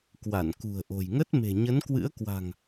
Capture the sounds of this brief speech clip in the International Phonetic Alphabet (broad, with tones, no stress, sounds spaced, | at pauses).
k w a˧˩ n k ṳ˨˩ ə̯ ʔ o̤˨˩ j ŋ ə˦˥ t̚ m e̤˨˩ ɲ ə˨˦ n k w ɨ̰˧˥ ə̯ k w a̤˨˩ ŋ